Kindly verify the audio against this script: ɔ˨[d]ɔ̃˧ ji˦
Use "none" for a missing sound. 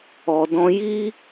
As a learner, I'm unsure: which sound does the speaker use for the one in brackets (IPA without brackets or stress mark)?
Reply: d